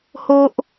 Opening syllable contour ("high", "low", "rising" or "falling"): high